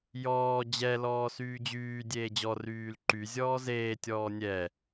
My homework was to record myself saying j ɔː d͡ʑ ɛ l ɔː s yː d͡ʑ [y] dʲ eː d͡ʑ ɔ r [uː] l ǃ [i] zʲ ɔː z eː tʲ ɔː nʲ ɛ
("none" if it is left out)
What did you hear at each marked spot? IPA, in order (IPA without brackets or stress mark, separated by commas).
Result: yː, yː, y